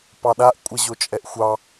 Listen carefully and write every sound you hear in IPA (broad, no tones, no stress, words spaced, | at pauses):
pɑɗaʔ kʷʼɛʑot͡ʃʼɛʔxʷɑ